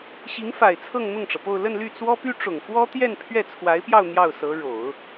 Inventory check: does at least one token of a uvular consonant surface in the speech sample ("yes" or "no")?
no